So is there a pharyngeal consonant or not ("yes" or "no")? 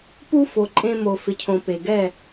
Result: no